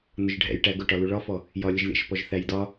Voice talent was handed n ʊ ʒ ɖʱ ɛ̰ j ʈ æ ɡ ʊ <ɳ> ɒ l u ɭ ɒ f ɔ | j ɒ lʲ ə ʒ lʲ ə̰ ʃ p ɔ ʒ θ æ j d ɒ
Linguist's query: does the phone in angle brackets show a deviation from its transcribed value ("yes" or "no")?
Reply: yes